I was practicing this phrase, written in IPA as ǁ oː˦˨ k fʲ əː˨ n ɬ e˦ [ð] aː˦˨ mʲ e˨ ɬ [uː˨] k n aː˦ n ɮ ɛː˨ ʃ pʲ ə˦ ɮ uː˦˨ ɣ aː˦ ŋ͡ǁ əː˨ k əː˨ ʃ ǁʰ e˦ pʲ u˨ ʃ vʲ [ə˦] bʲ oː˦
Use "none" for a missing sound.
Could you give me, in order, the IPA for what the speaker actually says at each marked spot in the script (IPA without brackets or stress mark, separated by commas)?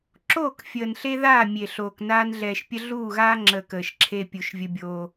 ð, oː˨, ə˦